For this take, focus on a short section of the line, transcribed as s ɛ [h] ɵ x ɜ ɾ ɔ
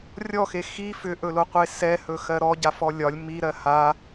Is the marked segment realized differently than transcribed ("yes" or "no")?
no